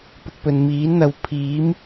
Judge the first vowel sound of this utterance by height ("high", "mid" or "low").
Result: high